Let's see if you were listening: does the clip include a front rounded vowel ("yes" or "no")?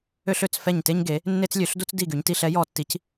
yes